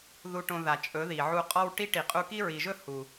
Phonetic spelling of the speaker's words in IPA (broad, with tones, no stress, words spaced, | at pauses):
ðu˧ʈõ˧ ða˨t͡ʃʼɵ˨˦ ði˨ ʕu˧qʼɔ˦w ʈi˦ʈi˨ qʼu˧ki˦ɹi˨ʒɵ˦ hu˨